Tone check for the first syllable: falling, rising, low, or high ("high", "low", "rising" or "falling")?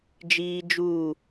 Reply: high